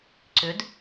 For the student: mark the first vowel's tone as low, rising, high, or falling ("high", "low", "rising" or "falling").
rising